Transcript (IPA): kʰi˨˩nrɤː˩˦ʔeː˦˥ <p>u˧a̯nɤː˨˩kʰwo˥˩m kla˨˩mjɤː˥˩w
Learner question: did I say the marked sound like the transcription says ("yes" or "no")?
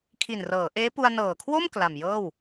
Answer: yes